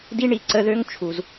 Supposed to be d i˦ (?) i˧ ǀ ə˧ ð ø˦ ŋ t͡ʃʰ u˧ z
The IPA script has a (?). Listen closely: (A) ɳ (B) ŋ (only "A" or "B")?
A